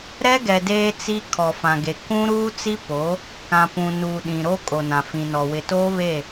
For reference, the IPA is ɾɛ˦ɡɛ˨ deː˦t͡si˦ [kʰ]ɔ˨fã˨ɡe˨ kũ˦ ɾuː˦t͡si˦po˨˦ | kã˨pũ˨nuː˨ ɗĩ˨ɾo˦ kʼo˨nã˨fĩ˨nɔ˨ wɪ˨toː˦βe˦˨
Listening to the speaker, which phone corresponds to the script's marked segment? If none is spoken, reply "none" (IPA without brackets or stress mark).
kʰ